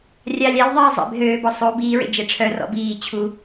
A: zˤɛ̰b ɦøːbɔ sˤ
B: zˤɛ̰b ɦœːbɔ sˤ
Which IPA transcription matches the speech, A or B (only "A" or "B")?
A